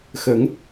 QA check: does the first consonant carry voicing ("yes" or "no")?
no